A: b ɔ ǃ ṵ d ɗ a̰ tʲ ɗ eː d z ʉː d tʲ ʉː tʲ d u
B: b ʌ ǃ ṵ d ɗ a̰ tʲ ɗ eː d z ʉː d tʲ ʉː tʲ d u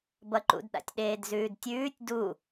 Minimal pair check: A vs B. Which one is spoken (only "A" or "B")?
B